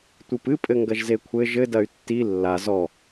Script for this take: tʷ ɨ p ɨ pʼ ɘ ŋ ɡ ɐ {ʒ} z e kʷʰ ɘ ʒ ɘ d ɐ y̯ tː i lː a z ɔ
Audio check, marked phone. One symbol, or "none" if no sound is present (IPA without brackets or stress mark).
ʒ